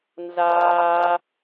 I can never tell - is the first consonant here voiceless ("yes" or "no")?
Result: no